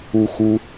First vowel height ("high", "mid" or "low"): high